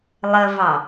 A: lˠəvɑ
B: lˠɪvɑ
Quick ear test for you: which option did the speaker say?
A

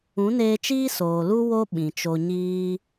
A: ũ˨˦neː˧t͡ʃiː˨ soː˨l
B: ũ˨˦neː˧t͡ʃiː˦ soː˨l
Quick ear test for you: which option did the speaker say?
B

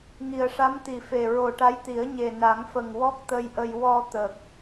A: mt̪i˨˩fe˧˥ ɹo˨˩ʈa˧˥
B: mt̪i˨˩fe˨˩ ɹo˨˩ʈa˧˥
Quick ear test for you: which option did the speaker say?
B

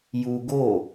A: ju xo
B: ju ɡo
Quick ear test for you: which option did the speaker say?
B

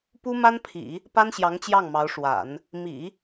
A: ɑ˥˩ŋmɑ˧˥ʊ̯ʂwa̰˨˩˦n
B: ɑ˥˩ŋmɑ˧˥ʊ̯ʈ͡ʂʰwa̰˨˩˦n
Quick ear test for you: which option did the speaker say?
A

